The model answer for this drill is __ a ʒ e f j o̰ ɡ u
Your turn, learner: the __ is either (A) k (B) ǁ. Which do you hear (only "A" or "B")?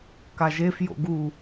A